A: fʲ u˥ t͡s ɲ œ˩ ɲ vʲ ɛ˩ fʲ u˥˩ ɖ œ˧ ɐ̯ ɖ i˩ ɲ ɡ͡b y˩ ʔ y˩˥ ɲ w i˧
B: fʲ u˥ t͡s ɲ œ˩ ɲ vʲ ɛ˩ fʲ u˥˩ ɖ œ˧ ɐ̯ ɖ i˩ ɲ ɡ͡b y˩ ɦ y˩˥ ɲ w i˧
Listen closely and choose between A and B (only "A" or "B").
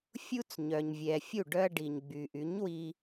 A